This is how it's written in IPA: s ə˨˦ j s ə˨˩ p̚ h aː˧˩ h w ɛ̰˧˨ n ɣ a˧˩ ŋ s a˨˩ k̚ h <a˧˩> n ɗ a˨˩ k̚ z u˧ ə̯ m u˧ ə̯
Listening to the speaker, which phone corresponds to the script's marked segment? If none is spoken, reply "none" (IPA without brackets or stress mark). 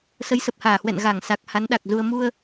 a˨˦